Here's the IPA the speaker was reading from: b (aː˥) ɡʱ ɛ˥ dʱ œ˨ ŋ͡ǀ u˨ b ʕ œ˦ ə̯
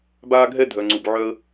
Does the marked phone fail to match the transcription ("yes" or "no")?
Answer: no